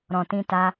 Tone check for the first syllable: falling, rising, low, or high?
low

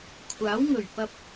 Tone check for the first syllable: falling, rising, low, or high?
rising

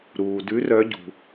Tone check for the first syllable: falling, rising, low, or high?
low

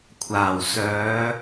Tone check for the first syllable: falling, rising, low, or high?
low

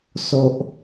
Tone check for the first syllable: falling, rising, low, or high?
low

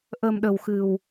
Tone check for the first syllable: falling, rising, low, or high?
low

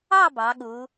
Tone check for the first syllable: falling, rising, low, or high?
falling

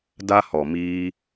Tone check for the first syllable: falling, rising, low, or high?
high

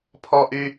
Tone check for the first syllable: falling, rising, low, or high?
high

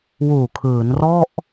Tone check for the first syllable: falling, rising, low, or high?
low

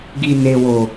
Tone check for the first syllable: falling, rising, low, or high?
low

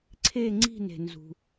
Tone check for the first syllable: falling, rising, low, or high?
falling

